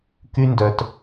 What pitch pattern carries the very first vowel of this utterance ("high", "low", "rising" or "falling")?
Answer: high